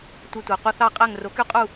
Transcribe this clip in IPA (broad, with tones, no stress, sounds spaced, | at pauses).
tʷ e˧ tʷ æ˩ qʷ ɯ˧ θ ɑ˥˩ qʼ æ˥˩ ŋ r o˩˥ k y˥˩ qʼ u˥˩